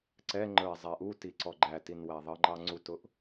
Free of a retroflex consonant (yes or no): yes